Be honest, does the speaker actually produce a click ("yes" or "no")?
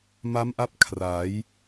no